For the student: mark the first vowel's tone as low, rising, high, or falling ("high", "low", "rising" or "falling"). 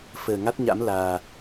low